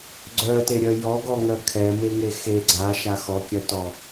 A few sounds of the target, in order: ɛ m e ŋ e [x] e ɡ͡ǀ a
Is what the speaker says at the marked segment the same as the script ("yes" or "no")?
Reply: yes